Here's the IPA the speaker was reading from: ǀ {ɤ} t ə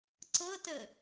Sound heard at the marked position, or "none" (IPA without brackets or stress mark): ɤ